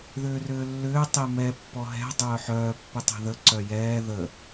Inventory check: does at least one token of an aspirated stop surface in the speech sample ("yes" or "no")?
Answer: no